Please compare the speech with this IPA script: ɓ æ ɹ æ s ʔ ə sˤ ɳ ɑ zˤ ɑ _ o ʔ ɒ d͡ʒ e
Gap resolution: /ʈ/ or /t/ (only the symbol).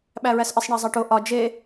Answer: ʈ